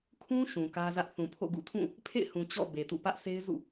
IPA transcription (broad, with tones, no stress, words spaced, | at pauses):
kʰũ˦ ʃũ˨kä˦zä˦ʔ θũ˨pʰo̰˦˨ ɡṵ˦˨tʰũ˦˨ | pʰḛ˦˨ɪ̯hũ˨ t͡ɕɔ̰˦˨ be˨tṵ˦˨ pä˦ʔsʰe˦ɪ̯zṵ˦˨